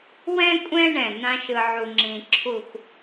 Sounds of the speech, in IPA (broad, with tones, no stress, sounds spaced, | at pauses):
w ɛ̃˥ kʷʼ ɛ̃˥ ɳ ɛ̃˧˩ n ã˥ ʃ ɯ˧ ʕ u˧ ŋ͡ǁ ĩ˧ ǁʰ u˥˧ x